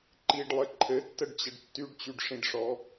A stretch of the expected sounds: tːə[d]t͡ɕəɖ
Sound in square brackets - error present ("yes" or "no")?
yes